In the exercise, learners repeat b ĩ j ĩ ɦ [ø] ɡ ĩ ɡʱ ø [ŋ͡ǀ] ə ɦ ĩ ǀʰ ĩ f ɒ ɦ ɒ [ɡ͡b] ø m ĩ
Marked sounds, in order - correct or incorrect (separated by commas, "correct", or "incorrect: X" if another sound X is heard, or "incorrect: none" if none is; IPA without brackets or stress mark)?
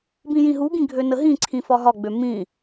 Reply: incorrect: u, incorrect: n, correct